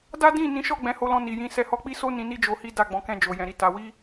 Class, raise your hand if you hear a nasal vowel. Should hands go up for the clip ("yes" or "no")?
yes